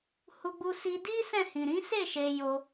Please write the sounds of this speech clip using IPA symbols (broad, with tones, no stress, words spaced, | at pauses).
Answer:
hu˧ɡ͡bu˧si˧ di˦ sɛ̃˦˨hĩ˨ ɾĩ˨˦se˦˨ ʃe˧ jo˧